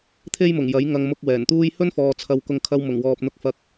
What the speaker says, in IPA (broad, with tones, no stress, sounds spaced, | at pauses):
t̪ʰ e˥ j m ʊ˨˩ ŋ j ɐ˨˥ j ŋ ɐ˧ ŋ m ʊ˧ k̚ w ɛː˨˩ n t̪ uː˥ j h ɵ˥ n f ɔː˨ t͡sʰ ɐ˧ w k ʊ˧ ŋ kʰ ɐ˧ w m ʊ˨˩ ŋ w ɔː˨ p̚ n̪ ʊ˧ k̚ f ɐ˧ k̚